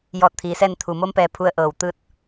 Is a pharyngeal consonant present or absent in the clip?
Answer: absent